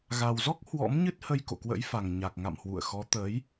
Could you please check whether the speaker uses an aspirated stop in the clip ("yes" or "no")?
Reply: no